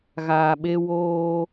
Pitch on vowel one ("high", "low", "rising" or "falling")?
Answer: low